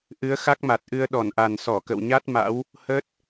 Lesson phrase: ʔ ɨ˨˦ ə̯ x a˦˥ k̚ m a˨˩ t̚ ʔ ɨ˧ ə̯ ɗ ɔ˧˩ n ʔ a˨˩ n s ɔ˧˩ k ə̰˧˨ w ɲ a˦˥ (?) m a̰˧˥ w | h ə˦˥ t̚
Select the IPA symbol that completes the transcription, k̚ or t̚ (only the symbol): t̚